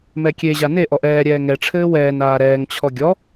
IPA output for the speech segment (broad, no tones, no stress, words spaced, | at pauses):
mɛkʲeʑa ne ʔɔʔɛːɾʲɛː ŋɛʈ͡ʂʰɘː wɛːn aːɾɛːŋt͡ɕʰɔ ɡʲɔ